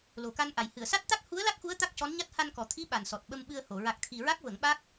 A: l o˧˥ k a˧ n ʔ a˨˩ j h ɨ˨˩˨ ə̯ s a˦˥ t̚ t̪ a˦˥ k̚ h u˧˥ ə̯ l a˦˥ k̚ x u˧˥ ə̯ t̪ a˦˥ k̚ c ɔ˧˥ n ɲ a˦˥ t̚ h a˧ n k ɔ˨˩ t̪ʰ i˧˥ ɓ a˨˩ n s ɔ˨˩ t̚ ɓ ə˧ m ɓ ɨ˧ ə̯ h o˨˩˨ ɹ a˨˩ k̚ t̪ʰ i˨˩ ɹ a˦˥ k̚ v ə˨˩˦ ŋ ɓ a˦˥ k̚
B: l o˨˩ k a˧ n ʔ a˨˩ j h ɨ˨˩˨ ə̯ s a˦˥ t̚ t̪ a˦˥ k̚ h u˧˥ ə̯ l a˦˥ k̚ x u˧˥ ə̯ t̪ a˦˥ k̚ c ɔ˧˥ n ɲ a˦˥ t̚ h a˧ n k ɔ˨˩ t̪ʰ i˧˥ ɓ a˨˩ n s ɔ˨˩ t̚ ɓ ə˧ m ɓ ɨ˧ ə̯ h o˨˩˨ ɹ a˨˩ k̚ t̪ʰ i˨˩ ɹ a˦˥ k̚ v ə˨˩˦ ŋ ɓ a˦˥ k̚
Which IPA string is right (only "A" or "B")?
B